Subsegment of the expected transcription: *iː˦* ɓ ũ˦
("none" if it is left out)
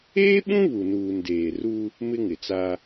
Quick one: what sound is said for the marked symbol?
eː˦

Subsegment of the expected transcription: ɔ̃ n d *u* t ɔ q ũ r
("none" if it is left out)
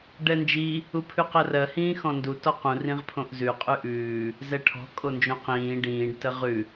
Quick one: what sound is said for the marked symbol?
u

